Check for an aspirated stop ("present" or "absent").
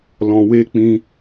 absent